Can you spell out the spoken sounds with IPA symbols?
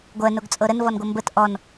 ɡʷ ɜ n o ɡ t͡sʼ ɤ ɾ ə n v ɔ n ɡʷ ʌ m b ə t ʔ ɔ n

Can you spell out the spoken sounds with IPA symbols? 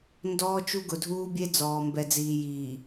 n d ɔː˦ t͡ʃ u˦ ɡ ʊ˨ dʱ uː˦ bʲ e˦ d͡z ɔː˨ m b ɛ˨ d͡z iː˨ j iː˨

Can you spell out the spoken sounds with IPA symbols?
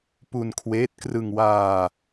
p u˧ n kʰ w eː˦˥ t̚ k r ɯ˧ ŋ w aː˧

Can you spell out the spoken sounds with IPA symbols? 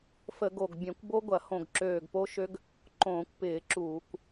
f ə˧˩˧ ɡ o˧˩ ɡ bʲ ɐ̃˧˩˧ kʷ b o˦˥ ɡʷ ɐ˧˩˧ h õ˧˩ ɡ ǁ øː˧˩ ɡ p o˦˥ ʃ ø˦˥ ɡ | ǃ õː˧˩˧ kʷ p ɪː˧˩˧ ǁ uː˧˩˧ kʷ

